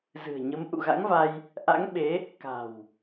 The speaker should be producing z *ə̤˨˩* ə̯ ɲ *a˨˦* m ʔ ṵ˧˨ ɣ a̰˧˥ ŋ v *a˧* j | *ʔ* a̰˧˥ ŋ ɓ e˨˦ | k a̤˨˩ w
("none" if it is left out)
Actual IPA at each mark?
ɨ̤˨˩, ə˨˦, a˧, ʔ

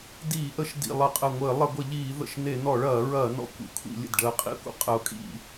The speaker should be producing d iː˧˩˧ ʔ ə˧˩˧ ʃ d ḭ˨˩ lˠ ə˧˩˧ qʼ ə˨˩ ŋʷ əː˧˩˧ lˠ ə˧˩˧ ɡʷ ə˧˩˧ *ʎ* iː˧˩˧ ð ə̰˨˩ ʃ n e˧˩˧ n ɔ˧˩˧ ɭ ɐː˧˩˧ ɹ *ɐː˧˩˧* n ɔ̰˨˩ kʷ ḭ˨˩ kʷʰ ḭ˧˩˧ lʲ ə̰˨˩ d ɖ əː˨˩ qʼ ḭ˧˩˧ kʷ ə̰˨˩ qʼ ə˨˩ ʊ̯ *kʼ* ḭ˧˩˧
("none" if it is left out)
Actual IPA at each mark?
ʎ, ɐː˧˩˧, kʼ

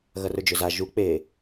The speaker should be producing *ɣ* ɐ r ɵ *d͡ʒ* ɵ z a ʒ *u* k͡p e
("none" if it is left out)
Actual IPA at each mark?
ɣ, d͡ʒ, u

